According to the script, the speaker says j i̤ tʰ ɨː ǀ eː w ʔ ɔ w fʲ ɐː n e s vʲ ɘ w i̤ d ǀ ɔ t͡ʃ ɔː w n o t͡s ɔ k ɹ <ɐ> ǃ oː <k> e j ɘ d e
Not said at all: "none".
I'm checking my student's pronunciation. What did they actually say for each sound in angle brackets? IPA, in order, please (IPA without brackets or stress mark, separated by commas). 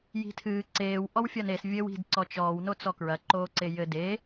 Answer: ɐ, ǀ